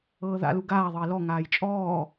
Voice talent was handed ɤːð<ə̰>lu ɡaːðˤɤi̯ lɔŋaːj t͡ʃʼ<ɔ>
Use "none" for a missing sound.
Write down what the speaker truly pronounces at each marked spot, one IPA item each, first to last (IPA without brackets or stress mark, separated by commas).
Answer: a̰, ɔː